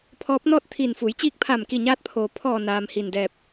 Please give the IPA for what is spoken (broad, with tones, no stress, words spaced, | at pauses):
pʰɔː˧˥p̚nɔː˥˨t̚t̪ʰiː˧˩n fuː˩˧jt͡ɕiː˧k̚pʰaː˧˩mki˧˩ ɲaː˧t̚pʰoː˩ pʰɔː˧˩naː˩m hiː˧˩ndɛː˧˩p̚